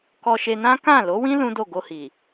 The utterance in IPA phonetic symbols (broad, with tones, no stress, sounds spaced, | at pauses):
k ɔ˧ ʃ e˧ n ã˦ k ã˦˨ l o˨˦ w ĩ˦ l ũ˦ d o˦˨ ɡ o˧ h i˨